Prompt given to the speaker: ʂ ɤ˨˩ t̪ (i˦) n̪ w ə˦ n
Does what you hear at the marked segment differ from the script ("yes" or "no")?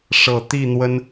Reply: yes